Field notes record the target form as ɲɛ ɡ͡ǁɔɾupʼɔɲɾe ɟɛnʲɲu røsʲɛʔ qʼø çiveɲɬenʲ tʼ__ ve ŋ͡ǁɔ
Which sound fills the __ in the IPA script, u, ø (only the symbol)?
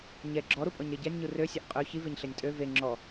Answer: ø